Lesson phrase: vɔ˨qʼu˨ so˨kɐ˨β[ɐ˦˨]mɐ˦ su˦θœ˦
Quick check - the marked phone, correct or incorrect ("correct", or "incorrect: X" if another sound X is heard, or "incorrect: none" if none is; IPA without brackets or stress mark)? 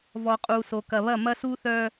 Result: correct